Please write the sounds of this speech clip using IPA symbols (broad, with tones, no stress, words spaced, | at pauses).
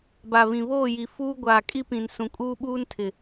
ba˨βĩ˨ βoː˦˨ji˨ fuː˦ ɡʷaː˨kʼi˦pĩ˨n sũ˨kʼuː˦ɓuː˦ntʰɪ˨